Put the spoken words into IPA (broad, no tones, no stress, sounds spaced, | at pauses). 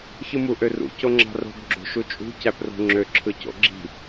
ç ɯ m u ʔ ø r ṵ c o ŋ͡ǁ ɑ̤ r o̤ ɡ ɡ͡ǁ o̤ ʃ u t͡ʃʼ ṳ c æ p r o̤ ŋ͡ǁ ø ǁʰ ɯ c o̰ ɡ͡ǁ i̤